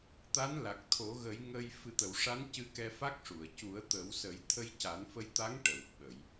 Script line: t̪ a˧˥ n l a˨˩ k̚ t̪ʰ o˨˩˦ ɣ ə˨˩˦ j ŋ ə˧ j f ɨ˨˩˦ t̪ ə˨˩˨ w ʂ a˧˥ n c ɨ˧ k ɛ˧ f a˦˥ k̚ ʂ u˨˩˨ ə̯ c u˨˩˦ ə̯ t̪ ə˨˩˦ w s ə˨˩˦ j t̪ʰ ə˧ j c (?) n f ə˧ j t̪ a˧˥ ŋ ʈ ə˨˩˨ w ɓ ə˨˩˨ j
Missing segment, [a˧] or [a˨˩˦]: a˨˩˦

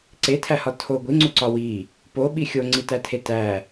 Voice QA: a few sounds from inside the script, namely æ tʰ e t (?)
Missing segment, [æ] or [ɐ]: æ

